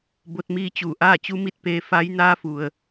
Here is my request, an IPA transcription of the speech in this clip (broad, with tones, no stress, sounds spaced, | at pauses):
b o˧ t̚ m iː˧ t͡ɕ uː˧˩ ʔ aː˥˨ t͡ɕ u˧˥ m i˥˨ t̚ p eː˧ f a˧˥ j n aː˧ f u˩ ə̯